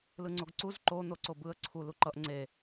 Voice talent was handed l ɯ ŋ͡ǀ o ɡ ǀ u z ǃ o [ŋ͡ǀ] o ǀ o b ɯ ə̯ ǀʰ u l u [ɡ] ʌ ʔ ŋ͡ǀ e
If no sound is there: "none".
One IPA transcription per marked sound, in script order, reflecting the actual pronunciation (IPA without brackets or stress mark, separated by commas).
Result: n̪, ǃ